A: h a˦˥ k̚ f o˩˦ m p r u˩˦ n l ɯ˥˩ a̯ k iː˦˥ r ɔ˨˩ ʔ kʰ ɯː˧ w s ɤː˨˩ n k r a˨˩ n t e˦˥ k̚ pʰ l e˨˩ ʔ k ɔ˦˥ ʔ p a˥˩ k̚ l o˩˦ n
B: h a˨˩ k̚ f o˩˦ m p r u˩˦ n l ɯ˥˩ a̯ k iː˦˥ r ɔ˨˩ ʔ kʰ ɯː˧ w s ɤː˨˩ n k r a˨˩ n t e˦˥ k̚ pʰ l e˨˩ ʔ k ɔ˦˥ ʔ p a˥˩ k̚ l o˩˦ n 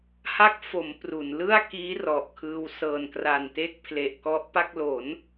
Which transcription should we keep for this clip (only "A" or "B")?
A